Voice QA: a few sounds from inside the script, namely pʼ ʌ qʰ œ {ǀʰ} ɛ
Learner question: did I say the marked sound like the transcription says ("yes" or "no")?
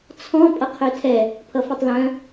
no